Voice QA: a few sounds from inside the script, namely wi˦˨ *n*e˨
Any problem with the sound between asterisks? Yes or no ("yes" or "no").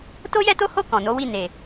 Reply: no